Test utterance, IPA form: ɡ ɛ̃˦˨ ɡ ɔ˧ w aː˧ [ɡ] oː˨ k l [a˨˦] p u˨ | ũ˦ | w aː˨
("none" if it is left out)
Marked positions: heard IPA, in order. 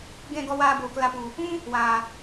b, a˧

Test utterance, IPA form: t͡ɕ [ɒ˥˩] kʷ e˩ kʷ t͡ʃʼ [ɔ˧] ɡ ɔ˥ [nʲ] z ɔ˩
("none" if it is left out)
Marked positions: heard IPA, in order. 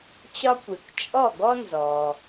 ɒ˧, ɔ˥˩, n

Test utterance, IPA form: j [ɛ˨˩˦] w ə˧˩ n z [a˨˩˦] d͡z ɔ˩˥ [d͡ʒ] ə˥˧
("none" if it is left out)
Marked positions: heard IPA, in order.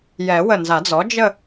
ɛ˨˩˦, a˨˩˦, d͡ʒ

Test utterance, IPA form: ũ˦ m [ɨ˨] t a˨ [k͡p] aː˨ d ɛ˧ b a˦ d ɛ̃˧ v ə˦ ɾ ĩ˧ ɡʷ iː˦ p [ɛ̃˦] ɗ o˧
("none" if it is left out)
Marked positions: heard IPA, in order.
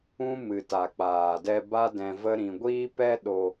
ɨ˨, k͡p, ɛ˦

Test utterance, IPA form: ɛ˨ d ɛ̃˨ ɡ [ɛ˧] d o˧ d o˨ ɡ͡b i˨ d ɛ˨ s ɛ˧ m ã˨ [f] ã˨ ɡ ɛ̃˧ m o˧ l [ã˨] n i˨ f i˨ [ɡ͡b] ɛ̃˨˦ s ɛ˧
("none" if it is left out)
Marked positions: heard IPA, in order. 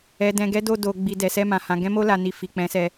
ɛ˨˦, h, a˨, k͡p

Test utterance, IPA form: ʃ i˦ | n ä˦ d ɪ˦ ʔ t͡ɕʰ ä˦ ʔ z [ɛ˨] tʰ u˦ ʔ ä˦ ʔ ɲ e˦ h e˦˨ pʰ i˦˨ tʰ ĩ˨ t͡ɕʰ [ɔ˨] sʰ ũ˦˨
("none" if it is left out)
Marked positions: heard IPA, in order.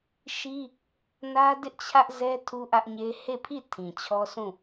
ɛ˦, ɔ˦

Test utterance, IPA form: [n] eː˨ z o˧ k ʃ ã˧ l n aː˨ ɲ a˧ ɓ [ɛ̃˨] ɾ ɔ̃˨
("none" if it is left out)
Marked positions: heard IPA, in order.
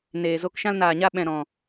n, ɛ̃˨

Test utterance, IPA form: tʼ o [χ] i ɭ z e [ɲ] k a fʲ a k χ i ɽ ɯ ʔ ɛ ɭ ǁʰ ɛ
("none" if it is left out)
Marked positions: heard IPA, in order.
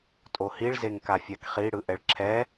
h, ŋ

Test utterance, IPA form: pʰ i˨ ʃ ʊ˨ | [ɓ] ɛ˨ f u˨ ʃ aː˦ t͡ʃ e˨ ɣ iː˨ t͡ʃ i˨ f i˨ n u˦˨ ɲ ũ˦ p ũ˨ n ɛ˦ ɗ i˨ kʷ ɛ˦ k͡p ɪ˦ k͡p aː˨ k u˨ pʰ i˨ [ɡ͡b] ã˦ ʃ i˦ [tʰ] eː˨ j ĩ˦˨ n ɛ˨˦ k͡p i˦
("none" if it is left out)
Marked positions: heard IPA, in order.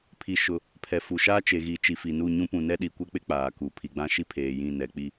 pʰ, ɡ͡b, pʰ

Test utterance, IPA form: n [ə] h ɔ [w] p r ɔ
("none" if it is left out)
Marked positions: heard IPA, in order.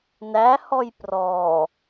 æ, j

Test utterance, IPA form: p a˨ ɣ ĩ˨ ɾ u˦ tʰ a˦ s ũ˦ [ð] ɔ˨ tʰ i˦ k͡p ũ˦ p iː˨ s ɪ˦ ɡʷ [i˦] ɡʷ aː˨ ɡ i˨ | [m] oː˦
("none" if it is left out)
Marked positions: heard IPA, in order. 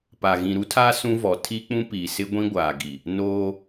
v, ĩ˦, n

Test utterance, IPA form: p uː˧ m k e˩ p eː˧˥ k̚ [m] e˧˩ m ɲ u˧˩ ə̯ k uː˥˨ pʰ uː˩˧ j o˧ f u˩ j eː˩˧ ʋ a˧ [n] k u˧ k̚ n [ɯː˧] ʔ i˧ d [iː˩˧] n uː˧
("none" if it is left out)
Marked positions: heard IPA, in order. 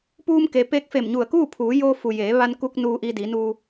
f, n, uː˧, iː˩˧

